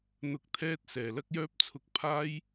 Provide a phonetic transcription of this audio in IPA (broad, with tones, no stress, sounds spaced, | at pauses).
n̪ ʊ˨˥ k̚ t̪ʰ ɛː˧ t̚ s ɛː˨˩ l ɐ˧ k̚ j œː˧ p̚ t͡sʰ ʊ˨ k̚ pʰ aː˧ j